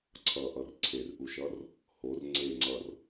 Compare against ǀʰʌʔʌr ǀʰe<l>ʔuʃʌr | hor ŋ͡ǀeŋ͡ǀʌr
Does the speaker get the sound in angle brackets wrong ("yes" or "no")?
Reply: yes